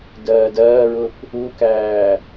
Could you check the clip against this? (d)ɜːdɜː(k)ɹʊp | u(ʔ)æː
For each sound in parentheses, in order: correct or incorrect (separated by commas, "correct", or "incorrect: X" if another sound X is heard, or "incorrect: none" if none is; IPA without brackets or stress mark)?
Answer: correct, incorrect: none, incorrect: k